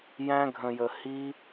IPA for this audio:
j æ̃˦ ɡʱ ə̃˧ j ə˧ h i˦

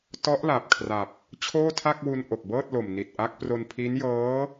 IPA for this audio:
t ɔ˦˥ ʔ l a˨˩ p̚ kʰ r a˨˩ p̚ | t͡ɕʰ oː˥˩ tʰ a˥˩ k̚ w u˧ n ʔ o˨˩ k̚ b ɤː˥˩ t̚ l o˨˩ m n i˨˩ t̚ ʔ a˦˥ k̚ p r o˧ n pʰ i˦˥ n j ɤː˦˥

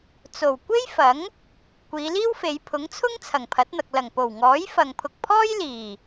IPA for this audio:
t͡s o˨˩ w kʷ e˥ j f ɐ˨˥ ŋ | kʷ iː˨˧ l iː˥ w f e˨˧ j pʰ ʊ˨˥ ŋ t͡sʰ ʊ˥ ŋ t͡sʰ ɐ˨˩ ŋ pʰ ɐ˨˥ t̚ n̪ ɐ˨ k̚ l ɐ˨˩ ŋ p o˨˩ w ŋ ɔː˨˥ j f ɐ˨ ŋ pʰ ʊ˨ k̚ pʰ ɔː˥ j l iː˨˩

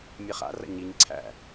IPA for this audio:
mʲ ɛ χ a̰ r a̰ ɲ i ɲ ǀʰ æ̰

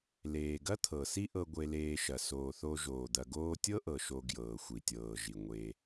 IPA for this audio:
l eː˩ ɡ ɐ˥ t̪ʰ ɤ˩ s i˦ ʔ ɤ˨ ɡʷ e˨ l eː˨ ʃ ɐ˩ s oː˩ θ o˨ ʒ oː˩ d̪ ɐ˨ ɡ oː˦ tʲ ɤ˥ ʔ ɤ˩ ʃ o˨ ɡ j ɤː˩ xʷ i˩ tʲ ɤː˩ ʒ i˩ ŋʷ e˨

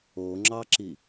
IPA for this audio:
o ŋ͡ǁ ɑ ǁ i

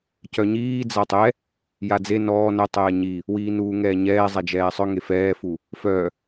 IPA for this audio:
c œ ɲ iː d͡z a tˤ ɛ | j a d͡z e n ɔː n œ tˤ ɛː ɲ i | w iː n uː ŋ ɛː ɲ ɛː zˤ ɛ d͡ʒ ɛː sˤ œ ŋ e f ɛː f u | f œ

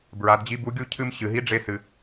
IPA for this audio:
b ɹ a˩˧ d d͡ʑ i˧˥ b u˧˥ ɡʲ u˥ cʰ ɨ˧ m ɕ ɨ˩ ɦ i˧˥ ɖ͡ʐ e˧ s ɨ˩

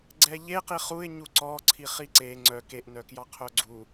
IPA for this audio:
ɡ͡ǀ ɛ ʎ e q i χ u ɪ̯ ɲ u ǀ ɔ ǀʰ i χ i ǀ e ŋ͡ǀ œ k e ʔ n œ k j ɑ qʰ œ ɡ͡ǀ u

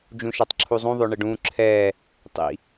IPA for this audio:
d͡ʒ ũ ʃ a tˤ ǁʰ u zˤ ũ ðˤ o ɳ ɘ ɖ ũ ǁʰ ɛː | tˤ ḭ

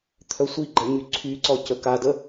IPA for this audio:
t̪ʰ œ sʷ i ɡ͡ǃ ɛ ɲ y ǀʰ y ǀ ɔ c ə k a d ə

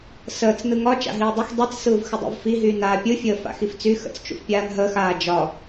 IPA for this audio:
s əː t͡s n ɯ ŋ ɒ t͡ʃ a̰ ɦ iː dˤ u x dˤ i t͡s s ɯː v x ə dˤ ṵ v f i ɦ yː n aː pʲ ɯ fʲ əː f a̰ x i f t͡s y x ə̰ t͡s t͡ʃ ṵ f pʲ aː n ɦ əː x aː d͡ʒ ɒ

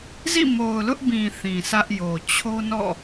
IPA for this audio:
z ḭ˦˨ m o˨ ʊ̯ l ʊ˦ ʔ b ĩ˨ θ ĩ˨ s ä˦ ʔ j o˨ t͡ɕʰ o˦ n ɔ̰˦˨

